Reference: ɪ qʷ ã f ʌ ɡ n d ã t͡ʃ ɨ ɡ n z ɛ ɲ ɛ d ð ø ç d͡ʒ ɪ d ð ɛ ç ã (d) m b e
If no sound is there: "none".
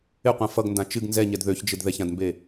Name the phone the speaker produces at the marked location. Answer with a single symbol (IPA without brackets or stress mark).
d